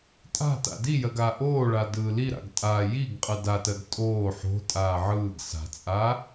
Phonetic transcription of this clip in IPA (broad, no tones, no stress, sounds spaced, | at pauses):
tʼ a̤ t a̰ d i j ɜ ɡ aː ʔ oː ɭ a d ɯː l i ɾ a̰ ɡ tʼ a j i ɡ qʼ ɯ d a t ɜ ɡ tʼ oː ħ o̤ tʼ aː ʕ ɯː ɡ s a̤ t͡sʼ aː